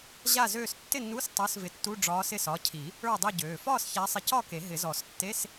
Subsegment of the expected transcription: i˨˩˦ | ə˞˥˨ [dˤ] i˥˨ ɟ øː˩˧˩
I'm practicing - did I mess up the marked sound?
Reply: no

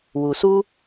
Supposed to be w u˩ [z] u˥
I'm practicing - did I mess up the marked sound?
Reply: yes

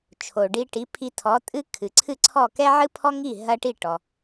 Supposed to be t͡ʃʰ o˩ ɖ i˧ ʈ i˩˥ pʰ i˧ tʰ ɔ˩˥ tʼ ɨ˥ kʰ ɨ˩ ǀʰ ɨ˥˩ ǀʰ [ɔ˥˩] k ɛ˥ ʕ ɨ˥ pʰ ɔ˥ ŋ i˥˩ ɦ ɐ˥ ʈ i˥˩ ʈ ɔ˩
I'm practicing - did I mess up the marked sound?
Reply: no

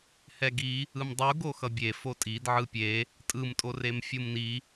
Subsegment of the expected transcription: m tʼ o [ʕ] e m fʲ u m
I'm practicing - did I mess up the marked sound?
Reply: yes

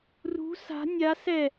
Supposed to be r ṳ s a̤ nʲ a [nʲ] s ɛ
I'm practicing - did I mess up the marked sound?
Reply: yes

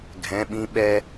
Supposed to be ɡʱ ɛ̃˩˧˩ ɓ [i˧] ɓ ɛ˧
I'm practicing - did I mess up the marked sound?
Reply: yes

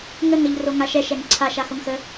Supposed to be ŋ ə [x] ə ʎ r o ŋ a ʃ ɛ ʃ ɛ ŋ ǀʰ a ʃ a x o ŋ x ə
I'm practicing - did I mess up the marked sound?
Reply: yes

